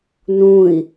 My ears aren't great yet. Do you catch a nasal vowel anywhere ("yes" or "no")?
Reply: yes